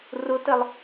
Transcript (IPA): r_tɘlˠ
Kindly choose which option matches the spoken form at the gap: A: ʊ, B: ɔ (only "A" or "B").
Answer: A